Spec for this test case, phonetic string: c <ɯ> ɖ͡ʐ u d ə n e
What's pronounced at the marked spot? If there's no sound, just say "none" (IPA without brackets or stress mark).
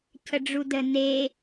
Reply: ə